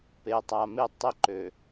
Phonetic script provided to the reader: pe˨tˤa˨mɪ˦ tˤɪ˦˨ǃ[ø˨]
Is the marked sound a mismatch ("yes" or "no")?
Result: no